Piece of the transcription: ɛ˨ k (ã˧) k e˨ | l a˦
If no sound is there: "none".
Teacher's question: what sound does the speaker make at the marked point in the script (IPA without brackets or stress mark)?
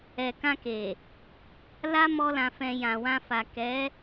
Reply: ã˧